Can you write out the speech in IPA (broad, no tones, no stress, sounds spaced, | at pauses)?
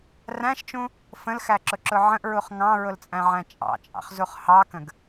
r æ̃ ʃ t͡ʃ ũ | f ə̃ l x æ ǁ ʊ ǁ ʊ ʕ ə̃ ʔ ɹ u χ ŋ ɑ̃ ɹ ʊ l t͡sʼ æ̃ ʕ æ̃ t͡ʃʼ ɑ̰ t͡ʃʼ ɑ̰ χ z u χ h ɑ k ə̃ ɡ